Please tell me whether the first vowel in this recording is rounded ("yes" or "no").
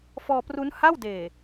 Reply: yes